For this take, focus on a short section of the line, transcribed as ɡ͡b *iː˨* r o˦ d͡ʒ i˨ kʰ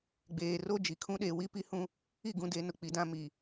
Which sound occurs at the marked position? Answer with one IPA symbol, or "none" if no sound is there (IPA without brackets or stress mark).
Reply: eː˨